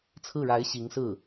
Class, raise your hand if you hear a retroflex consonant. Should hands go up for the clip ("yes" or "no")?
yes